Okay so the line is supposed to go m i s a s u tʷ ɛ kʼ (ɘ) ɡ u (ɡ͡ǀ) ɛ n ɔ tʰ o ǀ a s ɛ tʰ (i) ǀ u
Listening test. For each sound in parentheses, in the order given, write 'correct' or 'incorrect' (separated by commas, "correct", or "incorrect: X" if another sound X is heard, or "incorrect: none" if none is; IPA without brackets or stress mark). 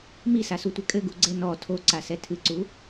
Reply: correct, correct, incorrect: ɨ